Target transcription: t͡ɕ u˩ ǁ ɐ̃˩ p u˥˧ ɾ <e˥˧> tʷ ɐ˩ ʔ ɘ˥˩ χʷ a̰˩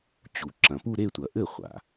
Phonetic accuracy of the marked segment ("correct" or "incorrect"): correct